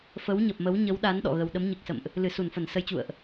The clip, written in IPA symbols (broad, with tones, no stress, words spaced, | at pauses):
fə˨˦wɲə˨˩p̚mə˨˦w ɲə˨˦wɗa˨˦n ɗɔ̰˧˨ɣə˧w ɗə˨˦mɲɨ˨˩k̚sə̰˧˨mʔ | lɨ˧˩su˧˩nfə˧˩n sə˧jt͡ɕṵ˧˨ə̯ʔ